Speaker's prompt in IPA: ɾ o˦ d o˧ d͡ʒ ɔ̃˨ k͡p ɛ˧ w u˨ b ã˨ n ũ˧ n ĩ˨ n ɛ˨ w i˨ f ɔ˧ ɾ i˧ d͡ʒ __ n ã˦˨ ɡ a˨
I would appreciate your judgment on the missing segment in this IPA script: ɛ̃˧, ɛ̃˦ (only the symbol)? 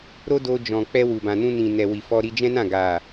ɛ̃˦